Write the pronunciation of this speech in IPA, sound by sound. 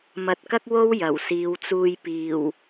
m ɐ˨ t̚ k ɐ˥ k̚ w o˥ w j ɐ˨˩ w s iː˨˧ w t͡s uː˧ j p iː˨˩ w

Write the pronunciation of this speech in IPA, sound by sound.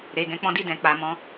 ɾ e˨ ɡ ɛ̃˧ k͡p ɔ̃˦ d i˦˨ d ɛ̃˨ k͡p a˨ m ɔ̃˨˦

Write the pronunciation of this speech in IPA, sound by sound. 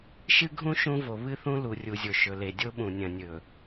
ʃ ɨ˦ ɡʱ ũ˦ ʃ ũ˦ v o˨ β ɨ˦ θ ũ˦ l u˨ rʲ u˨ zʲ o˨ ʃ ɵ˨ l e˨ dʲ o˦ ɓ ũ˨ nʲ ɐ̃˨ nʲ ɵ˨

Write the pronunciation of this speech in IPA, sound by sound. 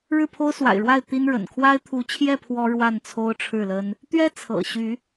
ɻ ɻ̩˥˨ pʰ o˦ ʊ̯ s w a̰˨˩ ɪ̯ ɻ w a˥˨ ɪ̯ t̪ i˦ n ɻ ə̰˨˩ n kʰ w a˦ ɪ̯ t̪ʰ u˨˦ t͡ɕʰ j ɛ˥˨ pʰ w ɔ˦ ɻ w a˥˨ n t͡sʰ o˦ ʊ̯ ʈ͡ʂʰ ɻ̩˥˨ l ə˦ n | t̪ ɥ ɛ˦ t͡sʰ ɤ̰˨˩ ɕ y˨˦

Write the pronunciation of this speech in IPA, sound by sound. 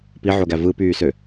p i ʕ o ɡ æ v ɯ p yː s ø

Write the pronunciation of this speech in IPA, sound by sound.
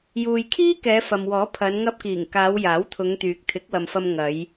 j uː˨ j kʰ iː˥ k ɛː˨˧ f ɐ˨ m w ɔː˨˥ pʰ ɐ˨˧ n ŋ ɐ˧ p̚ k iː˨˩ ŋ k aː˨˧ w j aː˨˥ w t̪ʰ ʊ˨˧ ŋ t̪ yː˨ k̚ t̪ʰ ɪ˨˥ k̚ w ɐ˨ m f ɐ˧ m ŋ ɐ˨˧ j

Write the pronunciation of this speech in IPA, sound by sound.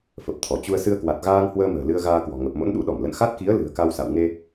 f ə˨˩ p̚ t̪ʰ ɔ˧˩ t͡ɕ u˧ ə̯ s ɨ˧ ə̯ k w a˨˩ t̚ ɣ aː˧ ŋ h w əː˧ m ə̤ː˨˩ l ɨ˧ ə̯ ɣ aː˧ k w ɔ̤˨˩ ŋ ə˨˩ p̚ m o̰˧˥ n ɗ ṵ˧˥ ɗ ɔ˧˩ m l ə̰˧˨ n x a˦˥ t̚ k i˨˦ ə̯ l ɨ̤˨˩ ə̯ k a˧ w s a̰˧˨ w ŋ e˧

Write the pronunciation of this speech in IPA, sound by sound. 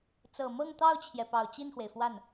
t͡s ɤ˨˩ m ɤ˥˧ ŋ t̪ ɑ˥˩ ʊ̯ t͡ɕʰ j ɛ˩ p ɑ˨˩ ʊ̯ t͡ɕ i˥˩ n x w e˩ ɪ̯ f w a˥˩ n

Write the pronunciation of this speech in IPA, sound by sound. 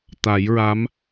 t̪ a˨˩˦ j ɹ a˧˥ m

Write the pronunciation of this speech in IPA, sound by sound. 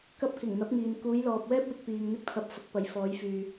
k ɐ˧ p̚ k ɪ˨˩ ŋ n̪ ɐ˨˥ p̚ ŋ iː˨ n k uː˨˧ j l ɔː˨ p̚ w ɛː˥ p̚ w ɪ˧ k̚ p iː˨ ŋ n̪ ɪ˧ k̚ t̪ʰ ɐ˨˥ p̚ f ɐ˨˥ k̚ p ɐ˨ j f ɔː˨˧ j f yː˨

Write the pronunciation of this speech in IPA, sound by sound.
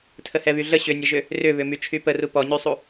tʰ ə h ɛ β y ɮ ə ɕ ʏ nʲ ə ʒ ʏ | r ʏ β ʏ m y t͡ʃʰ y p ə r u p ɔ ɲ y sˤ u

